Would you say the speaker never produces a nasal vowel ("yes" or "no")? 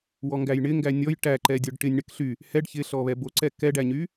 yes